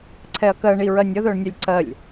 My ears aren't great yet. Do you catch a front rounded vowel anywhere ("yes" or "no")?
yes